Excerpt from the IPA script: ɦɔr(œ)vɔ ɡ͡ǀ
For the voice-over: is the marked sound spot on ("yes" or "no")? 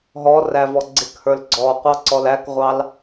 no